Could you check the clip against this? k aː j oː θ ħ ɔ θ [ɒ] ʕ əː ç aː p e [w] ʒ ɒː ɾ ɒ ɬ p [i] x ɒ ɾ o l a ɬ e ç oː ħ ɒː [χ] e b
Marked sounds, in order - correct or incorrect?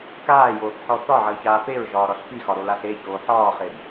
correct, incorrect, correct, correct

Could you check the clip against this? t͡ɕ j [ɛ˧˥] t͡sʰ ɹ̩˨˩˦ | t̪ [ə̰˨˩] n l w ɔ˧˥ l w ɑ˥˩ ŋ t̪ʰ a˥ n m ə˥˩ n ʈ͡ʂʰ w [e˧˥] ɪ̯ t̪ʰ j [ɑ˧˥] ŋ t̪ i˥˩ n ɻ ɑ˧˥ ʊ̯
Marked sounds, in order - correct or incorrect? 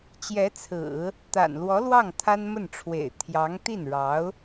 correct, incorrect, incorrect, correct

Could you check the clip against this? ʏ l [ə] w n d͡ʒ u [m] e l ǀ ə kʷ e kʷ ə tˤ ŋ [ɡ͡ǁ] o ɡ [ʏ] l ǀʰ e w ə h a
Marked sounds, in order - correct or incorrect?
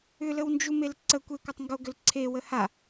correct, correct, incorrect, correct

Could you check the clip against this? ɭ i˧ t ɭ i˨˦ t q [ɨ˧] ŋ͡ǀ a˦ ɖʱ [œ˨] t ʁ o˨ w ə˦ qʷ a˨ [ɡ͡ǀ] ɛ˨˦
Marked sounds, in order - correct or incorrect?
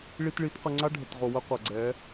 incorrect, incorrect, correct

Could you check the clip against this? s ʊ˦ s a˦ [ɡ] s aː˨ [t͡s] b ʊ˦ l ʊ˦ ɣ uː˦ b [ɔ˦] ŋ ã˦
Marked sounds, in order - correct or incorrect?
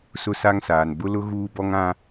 incorrect, incorrect, correct

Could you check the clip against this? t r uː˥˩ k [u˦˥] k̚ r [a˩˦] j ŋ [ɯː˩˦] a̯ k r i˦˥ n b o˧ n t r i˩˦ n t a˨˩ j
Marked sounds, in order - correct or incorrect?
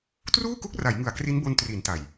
correct, correct, incorrect

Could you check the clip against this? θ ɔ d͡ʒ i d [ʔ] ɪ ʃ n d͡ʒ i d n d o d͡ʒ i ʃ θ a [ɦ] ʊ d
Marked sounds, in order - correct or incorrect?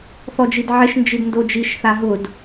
incorrect, correct

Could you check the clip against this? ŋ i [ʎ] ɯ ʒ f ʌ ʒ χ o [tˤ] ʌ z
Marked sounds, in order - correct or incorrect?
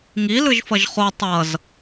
incorrect, correct

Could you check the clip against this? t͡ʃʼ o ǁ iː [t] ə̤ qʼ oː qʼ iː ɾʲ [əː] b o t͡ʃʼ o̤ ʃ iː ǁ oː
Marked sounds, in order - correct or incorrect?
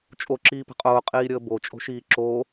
incorrect, correct

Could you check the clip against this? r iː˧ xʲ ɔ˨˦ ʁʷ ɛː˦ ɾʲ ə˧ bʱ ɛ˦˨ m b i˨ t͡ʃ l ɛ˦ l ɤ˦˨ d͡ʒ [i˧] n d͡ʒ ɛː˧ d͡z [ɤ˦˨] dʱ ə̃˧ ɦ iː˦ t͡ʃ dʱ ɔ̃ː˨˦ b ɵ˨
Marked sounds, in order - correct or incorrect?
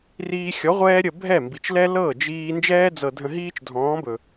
incorrect, incorrect

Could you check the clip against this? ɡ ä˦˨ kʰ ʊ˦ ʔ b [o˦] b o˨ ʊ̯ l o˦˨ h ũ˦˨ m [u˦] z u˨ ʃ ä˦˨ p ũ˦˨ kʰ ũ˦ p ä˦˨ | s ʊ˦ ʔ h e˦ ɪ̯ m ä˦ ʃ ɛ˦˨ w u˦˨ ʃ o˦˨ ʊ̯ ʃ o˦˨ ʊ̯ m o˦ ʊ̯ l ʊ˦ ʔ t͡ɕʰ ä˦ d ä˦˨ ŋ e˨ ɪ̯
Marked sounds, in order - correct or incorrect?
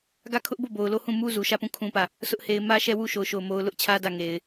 incorrect, correct

